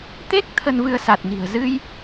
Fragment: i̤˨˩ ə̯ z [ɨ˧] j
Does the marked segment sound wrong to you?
no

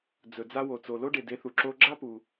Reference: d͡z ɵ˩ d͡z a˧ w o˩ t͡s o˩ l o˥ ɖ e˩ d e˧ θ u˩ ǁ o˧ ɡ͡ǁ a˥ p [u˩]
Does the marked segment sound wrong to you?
no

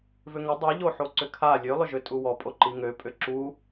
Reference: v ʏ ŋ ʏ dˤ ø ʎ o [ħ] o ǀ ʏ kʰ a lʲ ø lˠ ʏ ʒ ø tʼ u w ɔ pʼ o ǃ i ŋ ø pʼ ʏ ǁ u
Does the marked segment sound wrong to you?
no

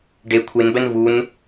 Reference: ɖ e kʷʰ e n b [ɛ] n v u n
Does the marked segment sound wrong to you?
no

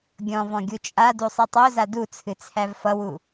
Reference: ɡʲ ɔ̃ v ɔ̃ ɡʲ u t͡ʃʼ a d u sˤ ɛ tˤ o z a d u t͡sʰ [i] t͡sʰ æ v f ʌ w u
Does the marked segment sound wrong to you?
yes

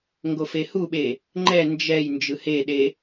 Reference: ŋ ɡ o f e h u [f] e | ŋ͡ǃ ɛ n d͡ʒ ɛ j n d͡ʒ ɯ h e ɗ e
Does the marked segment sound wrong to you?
yes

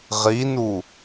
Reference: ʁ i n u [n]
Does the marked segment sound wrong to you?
yes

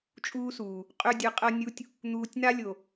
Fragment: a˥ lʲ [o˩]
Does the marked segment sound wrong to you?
no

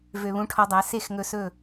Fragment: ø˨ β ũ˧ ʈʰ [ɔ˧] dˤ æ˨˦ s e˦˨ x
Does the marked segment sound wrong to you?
no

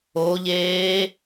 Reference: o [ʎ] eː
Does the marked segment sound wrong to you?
no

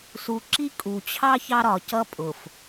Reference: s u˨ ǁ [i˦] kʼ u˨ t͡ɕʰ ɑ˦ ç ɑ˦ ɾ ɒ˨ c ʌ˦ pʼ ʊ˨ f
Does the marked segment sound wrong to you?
no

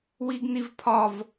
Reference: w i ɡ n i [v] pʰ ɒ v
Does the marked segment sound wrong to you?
no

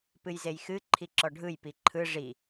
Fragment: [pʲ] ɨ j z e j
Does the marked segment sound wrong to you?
yes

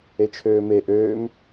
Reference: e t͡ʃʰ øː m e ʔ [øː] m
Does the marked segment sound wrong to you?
no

